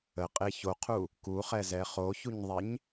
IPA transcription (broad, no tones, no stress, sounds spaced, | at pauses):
ə qʼ e ç o qʰ u | k u χ ɛ z ɛ χ o ç u ɲ ðˤ e ɲ